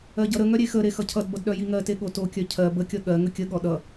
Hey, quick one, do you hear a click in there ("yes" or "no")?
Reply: no